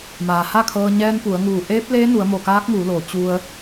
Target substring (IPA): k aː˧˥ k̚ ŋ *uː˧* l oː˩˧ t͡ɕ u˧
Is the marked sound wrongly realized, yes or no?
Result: yes